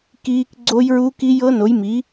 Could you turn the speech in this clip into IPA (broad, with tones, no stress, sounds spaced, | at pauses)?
k iː˦˥ k ɡ͡ǀ o˦˥ j ɹ u˦˥ k i˦˥ j ɤ˦˥ n o˨˥ j m i˨˥